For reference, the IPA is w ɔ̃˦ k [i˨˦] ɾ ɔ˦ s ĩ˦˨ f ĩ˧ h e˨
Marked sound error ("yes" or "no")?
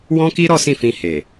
yes